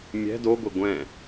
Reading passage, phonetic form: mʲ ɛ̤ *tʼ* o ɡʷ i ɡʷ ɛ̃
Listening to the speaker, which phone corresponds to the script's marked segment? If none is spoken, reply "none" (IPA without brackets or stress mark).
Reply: d